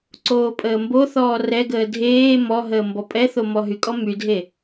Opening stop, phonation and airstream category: click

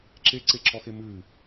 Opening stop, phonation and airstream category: click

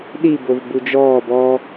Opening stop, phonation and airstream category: implosive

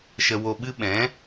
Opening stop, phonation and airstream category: implosive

